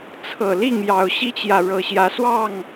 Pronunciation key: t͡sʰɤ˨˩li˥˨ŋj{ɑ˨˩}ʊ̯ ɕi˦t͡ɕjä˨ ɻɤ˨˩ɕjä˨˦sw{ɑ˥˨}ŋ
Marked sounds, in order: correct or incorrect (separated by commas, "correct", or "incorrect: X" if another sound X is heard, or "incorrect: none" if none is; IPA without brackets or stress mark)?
correct, correct